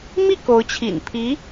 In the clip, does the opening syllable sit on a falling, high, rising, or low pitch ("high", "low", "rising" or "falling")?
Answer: falling